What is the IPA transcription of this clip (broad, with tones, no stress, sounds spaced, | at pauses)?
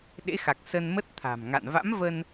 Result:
ɗ ḛ˧˥ x a˨˩ k̚ s ə˧ n m ə˦˥ t̚ t̪ʰ a̤˨˩ m ŋ a̰˧˨ n v a̰˧˥ m v ə˧ n